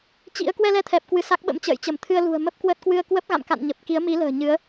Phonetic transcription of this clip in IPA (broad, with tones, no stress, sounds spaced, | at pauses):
t͡ɕ ḭ˧˥ ə̯ k w ɛ˧ l ɛ˧ t̪ʰ ɛ˨˩ p̚ k w ɨ˧˩ s a˦˥ k̚ ɓ ə̰˧˥ m t͡ɕ ə̰ː˧˨ j t͡ɕ ə˧˩ m t̪ʰ ɨ˧ ə̯ l ṳ˨˩ ə̯ m ə˦˥ p̚ k w ə˦˥ t̚ k w ɨ˧ ə̯ k w ə˦˥ p̚ ɣ a̰˧˨ m k a̰˧˨ n ɲ ə˨˩ p̚ k i˨˦ ə̯ m i˨˦ l ə̤ː˨˩ ɲ ɨ˨˦ ə̯